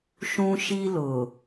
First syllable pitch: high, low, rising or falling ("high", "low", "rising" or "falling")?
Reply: high